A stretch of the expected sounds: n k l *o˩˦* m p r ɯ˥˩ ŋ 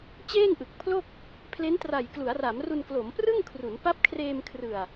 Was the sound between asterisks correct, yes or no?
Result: yes